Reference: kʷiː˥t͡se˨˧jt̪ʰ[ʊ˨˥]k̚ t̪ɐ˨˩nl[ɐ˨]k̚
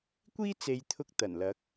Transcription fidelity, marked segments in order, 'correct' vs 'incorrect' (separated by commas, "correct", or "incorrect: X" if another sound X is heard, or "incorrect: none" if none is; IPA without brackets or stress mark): incorrect: ʊ˧, incorrect: ɐ˨˥